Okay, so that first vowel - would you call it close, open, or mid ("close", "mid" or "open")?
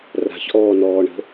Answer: open